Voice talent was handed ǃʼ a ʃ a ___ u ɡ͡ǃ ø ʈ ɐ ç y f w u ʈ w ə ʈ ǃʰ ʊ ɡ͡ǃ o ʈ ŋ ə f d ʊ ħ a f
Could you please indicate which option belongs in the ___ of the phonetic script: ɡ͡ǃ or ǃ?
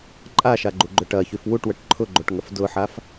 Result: ɡ͡ǃ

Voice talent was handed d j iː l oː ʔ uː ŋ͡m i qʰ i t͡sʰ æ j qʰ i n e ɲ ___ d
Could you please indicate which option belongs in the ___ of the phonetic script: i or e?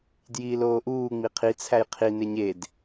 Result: e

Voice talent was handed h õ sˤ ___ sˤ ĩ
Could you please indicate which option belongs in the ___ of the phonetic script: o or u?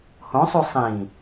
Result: u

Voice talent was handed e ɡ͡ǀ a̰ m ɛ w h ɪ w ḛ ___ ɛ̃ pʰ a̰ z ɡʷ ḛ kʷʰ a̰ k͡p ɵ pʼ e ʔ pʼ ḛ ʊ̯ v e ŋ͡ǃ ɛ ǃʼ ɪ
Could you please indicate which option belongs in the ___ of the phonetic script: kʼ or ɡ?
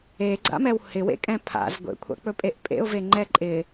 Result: kʼ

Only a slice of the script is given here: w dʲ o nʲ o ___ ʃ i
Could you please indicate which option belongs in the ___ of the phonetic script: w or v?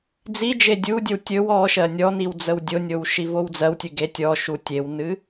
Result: w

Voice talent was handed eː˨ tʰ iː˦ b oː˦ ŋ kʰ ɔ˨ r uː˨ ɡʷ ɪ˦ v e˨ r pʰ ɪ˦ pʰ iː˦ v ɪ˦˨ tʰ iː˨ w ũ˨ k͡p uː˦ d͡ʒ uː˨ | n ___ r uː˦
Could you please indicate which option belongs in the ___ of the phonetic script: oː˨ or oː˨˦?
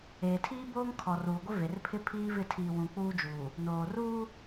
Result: oː˨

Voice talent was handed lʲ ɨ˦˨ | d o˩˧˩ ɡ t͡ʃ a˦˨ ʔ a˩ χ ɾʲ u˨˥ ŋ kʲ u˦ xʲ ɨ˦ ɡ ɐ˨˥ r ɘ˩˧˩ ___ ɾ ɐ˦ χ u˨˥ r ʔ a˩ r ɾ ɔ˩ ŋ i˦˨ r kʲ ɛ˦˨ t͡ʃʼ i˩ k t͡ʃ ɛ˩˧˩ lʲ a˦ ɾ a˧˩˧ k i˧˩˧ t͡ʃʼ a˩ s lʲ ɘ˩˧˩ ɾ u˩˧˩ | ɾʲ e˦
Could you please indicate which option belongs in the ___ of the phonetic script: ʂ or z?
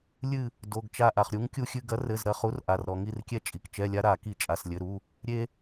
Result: z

